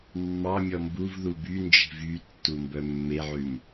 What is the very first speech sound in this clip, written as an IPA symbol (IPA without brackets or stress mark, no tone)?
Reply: mː